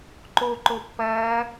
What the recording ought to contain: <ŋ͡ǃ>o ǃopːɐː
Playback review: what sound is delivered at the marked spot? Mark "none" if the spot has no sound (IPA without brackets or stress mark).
ǃ